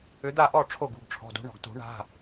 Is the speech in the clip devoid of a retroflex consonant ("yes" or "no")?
no